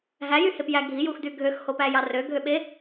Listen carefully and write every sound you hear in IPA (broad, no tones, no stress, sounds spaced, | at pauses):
ɦ æ j y h e p j æ ɡʱ i j u x d y ɡʱ ø x h o p æ j ɑ r ø ɡʱ ø ɓ e